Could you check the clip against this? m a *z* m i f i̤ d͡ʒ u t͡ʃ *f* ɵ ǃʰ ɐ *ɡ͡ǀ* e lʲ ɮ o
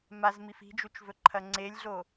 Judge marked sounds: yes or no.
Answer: yes, no, no

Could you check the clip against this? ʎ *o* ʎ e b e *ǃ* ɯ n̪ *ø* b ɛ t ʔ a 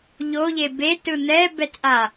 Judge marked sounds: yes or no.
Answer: yes, no, no

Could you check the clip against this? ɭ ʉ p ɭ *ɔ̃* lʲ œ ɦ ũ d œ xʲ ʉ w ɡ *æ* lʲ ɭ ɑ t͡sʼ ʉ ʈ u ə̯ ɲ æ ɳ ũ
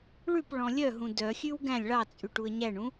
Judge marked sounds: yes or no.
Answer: yes, no

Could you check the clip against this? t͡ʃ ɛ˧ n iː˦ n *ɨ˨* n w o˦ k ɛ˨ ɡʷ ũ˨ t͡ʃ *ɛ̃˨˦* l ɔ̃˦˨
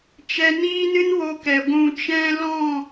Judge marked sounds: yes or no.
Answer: no, no

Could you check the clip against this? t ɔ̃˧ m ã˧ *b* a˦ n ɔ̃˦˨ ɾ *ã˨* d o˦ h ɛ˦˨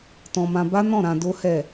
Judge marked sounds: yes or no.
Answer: yes, no

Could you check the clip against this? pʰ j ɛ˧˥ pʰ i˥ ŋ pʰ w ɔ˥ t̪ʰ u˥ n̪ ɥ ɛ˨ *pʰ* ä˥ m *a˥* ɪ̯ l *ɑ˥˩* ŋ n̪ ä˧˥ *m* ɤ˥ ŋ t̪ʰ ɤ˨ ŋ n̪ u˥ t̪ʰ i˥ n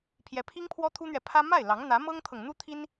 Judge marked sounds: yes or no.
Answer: yes, no, no, yes

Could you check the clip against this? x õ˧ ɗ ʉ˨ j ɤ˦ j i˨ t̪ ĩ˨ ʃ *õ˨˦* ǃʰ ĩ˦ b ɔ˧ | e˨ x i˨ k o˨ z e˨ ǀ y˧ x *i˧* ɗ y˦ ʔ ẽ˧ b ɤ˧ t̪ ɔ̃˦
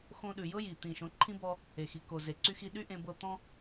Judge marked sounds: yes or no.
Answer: yes, yes

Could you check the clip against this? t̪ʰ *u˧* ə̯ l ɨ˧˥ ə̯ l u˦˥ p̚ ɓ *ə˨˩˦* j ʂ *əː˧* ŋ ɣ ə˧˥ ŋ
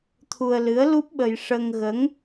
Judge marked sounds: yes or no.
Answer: yes, no, no

